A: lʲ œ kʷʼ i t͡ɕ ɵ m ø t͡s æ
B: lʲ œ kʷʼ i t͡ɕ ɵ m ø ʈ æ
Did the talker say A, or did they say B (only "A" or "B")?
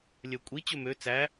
A